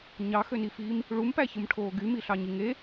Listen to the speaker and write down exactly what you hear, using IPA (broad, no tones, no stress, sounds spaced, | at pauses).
ɲ ɑ x ø n i f iː m | ɭ u m p æ ç ɯ m ʈʰ oː ɡ y m i ɬ ɑ ɲ i ŋ e